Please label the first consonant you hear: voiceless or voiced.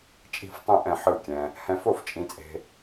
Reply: voiceless